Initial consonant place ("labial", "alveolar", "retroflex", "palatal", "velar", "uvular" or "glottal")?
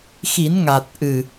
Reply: velar